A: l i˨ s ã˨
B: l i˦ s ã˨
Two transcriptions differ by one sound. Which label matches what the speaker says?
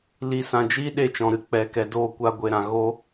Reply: A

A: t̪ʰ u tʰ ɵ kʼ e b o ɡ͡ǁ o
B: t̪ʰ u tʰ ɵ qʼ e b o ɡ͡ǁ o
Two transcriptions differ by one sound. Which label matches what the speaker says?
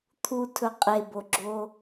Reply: B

